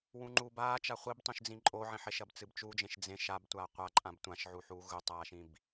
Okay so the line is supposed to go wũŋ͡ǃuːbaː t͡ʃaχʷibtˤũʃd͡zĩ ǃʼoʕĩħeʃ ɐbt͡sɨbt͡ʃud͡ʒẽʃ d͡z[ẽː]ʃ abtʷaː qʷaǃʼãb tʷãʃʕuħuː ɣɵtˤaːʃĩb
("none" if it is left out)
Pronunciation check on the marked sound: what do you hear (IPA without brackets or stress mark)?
ẽ